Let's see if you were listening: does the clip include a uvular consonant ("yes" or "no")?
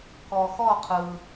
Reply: yes